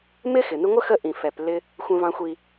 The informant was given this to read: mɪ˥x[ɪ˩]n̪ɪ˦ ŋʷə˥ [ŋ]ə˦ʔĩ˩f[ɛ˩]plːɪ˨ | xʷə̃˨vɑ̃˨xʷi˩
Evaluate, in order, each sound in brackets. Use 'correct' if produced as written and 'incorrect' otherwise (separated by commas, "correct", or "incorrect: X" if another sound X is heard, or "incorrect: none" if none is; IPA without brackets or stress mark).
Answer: correct, incorrect: x, correct